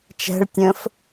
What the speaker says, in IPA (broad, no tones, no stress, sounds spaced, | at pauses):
t͡ʃ ɛ̤ ɭ tʲ ə̃ː f